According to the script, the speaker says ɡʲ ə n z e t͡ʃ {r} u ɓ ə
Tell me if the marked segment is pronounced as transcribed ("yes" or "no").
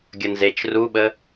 yes